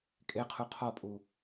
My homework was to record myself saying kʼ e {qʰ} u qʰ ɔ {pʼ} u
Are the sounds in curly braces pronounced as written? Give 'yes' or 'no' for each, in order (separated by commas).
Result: yes, yes